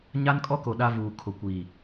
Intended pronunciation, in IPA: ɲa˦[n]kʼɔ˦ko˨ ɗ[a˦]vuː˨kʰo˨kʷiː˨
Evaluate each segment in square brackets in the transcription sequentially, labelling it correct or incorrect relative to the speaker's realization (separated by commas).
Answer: correct, correct